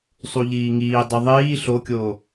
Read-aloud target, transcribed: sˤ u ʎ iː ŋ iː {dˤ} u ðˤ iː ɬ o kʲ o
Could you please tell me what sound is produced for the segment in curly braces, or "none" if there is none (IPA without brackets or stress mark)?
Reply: dˤ